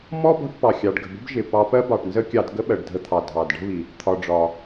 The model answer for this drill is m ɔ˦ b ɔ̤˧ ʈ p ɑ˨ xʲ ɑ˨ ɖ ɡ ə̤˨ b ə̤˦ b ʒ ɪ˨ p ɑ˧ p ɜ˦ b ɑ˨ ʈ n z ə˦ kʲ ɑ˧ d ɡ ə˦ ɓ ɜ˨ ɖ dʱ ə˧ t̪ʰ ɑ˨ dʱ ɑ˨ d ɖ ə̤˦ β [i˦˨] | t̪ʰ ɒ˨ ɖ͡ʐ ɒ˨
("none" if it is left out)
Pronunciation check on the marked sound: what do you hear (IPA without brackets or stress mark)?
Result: i˨